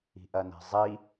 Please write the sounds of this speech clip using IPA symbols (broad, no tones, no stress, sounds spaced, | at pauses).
i̤ ʔ ɐ n ɛ̤ zˤ i